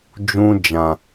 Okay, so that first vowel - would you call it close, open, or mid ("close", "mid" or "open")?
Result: close